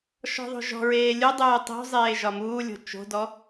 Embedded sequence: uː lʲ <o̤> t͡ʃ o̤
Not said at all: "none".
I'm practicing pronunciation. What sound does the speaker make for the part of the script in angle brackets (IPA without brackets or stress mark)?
o̤